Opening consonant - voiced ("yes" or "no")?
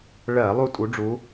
yes